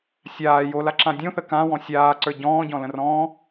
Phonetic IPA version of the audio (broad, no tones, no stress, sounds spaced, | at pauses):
sʲ aː j o l a ǁ ã dʲ õ θ ə k ã w ɔ̃ sʲ aː ǀ ə˞ ɟ ɔ̃ː ɟ ɔ̃ l ə̃ r ɔ̃ː